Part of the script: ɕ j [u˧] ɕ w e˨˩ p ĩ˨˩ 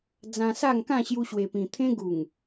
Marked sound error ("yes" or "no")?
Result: no